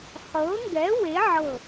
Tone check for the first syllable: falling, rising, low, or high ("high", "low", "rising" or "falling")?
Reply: rising